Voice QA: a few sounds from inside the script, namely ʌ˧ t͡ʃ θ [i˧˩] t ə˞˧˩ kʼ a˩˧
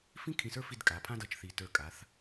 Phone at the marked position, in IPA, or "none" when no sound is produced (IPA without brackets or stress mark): i˧˩